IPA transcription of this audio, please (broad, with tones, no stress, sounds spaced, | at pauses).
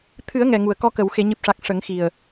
t̪ʰ ɨ˨˩˦ ə̯ ŋ ɛ˨˩ ŋ u˨˩ ə̯ k ɔ˧ k ə˨˩˨ w x e˨˩˨ ɲ ɨ˨˩ p̚ ʂ a˨˩ k̚ ʂ ə˨˩˦ ŋ x i˨˩ ə̯